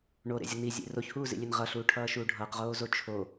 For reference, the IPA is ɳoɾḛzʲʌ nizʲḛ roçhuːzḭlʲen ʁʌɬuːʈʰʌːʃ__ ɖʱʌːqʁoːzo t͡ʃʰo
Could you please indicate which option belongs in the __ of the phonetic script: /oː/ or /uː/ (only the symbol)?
uː